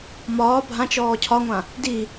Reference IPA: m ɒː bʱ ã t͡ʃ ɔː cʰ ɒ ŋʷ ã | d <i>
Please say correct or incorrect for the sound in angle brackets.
correct